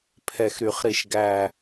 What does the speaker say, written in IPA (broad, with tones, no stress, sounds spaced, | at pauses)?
pʰ ɛ˨˩ x ɾ y˨˩ χ ɾ i˨˩ ʃ ɡ æ˨˩